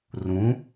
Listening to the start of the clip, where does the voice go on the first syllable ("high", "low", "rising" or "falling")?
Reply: rising